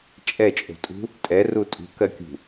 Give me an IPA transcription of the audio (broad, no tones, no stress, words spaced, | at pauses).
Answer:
t͡ʃʼɛt͡ʃʼo̤tʼṳ | tʼɛ rutʼṳkɜkʲṳ